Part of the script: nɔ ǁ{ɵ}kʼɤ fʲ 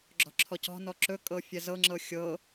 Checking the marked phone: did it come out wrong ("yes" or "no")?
no